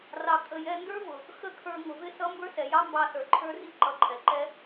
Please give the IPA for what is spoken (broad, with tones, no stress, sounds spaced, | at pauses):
r ɑ˨ kʼ ə˧ j ɛ˦ n d ə˞˦ v ʊ˨ | x ə˦˨ kʰ ə˞˧ ŋ ʊ˨ v ɪ˦˨ s ʌ˦ m b ə˞˦ s ɛ˨ j ɑ˦ m b ɑ˧ s ə˞˨ ǃʰ ə˞˦ r i˦ ǃ ʌ˧ ǃʰ ɛ˨ ǃ ɛ˦